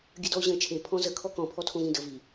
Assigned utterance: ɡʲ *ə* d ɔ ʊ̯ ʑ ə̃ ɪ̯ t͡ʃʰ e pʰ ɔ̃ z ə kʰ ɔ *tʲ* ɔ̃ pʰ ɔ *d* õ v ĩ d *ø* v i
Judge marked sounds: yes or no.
yes, no, no, no

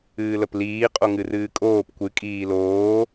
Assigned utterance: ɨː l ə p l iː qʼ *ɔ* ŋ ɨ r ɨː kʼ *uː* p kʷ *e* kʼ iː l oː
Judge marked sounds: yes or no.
no, no, no

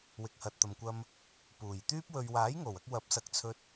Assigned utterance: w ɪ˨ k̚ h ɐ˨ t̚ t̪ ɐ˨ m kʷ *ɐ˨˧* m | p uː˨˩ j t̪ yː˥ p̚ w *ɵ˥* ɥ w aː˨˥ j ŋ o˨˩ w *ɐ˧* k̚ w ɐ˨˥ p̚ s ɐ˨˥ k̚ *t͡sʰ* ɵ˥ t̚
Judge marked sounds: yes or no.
no, no, yes, yes

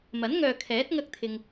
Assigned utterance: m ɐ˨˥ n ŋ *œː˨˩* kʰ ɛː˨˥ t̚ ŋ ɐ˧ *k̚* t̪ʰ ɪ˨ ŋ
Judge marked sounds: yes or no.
no, yes

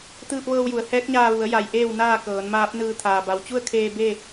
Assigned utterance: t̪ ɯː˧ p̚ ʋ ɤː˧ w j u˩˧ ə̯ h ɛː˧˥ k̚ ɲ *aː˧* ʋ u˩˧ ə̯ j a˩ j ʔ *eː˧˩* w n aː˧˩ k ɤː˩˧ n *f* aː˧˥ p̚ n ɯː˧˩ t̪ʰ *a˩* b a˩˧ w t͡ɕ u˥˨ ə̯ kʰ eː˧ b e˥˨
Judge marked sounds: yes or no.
yes, yes, no, no

